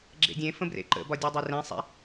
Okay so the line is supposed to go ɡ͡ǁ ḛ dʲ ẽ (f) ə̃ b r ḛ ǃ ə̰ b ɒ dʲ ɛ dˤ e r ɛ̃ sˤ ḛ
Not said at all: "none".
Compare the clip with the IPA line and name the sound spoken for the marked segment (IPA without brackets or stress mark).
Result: f